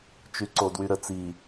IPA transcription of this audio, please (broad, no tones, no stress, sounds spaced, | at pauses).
t͡ʃ y ǀ o d w y ɾ ə t͡s i